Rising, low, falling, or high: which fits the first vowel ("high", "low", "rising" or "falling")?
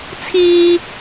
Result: high